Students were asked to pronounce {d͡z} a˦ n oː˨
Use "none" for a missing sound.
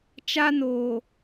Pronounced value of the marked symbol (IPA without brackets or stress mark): t͡ʃ